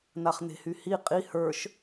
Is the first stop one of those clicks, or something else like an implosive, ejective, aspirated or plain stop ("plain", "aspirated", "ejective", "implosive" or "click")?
ejective